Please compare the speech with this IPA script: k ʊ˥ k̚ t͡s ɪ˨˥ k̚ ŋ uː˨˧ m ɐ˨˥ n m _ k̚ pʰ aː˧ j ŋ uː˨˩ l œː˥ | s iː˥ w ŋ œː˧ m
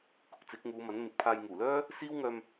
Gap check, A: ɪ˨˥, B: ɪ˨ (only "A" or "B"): A